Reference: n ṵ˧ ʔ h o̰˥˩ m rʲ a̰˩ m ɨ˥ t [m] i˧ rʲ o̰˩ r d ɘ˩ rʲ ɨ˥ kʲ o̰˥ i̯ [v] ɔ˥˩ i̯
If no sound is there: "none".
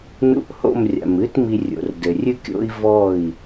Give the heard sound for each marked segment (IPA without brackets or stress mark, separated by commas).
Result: m, v